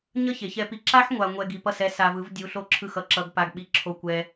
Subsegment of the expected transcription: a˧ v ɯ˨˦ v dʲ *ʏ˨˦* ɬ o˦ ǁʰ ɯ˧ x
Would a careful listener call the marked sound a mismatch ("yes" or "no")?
yes